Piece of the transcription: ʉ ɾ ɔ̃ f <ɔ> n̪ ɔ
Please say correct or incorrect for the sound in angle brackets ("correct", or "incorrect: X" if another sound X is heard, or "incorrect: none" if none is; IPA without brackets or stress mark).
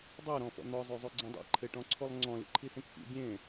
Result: incorrect: ɔ̰